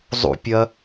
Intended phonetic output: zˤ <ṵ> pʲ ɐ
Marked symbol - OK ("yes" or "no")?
yes